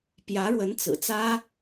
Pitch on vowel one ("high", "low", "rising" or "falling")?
rising